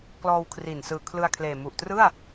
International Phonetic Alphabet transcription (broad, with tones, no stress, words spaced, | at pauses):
klɔː˧wkʰri˨˩n sɯː˨˩kʰlɯ˧a̯kʰleː˨˩ mu˨˩ʔtrɯ˥˩a̯